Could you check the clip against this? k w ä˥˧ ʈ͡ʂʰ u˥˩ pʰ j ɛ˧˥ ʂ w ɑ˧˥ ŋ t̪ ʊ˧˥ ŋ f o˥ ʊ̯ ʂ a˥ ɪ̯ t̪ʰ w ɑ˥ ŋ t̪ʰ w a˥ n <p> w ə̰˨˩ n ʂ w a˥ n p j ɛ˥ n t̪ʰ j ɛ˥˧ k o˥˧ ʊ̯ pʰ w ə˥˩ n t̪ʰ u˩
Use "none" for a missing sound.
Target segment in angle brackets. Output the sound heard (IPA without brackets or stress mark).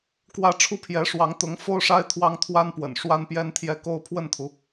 p